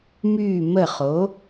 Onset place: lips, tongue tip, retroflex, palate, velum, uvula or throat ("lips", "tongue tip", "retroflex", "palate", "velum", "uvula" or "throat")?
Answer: lips